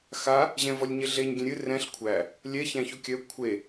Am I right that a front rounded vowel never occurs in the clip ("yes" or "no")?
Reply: no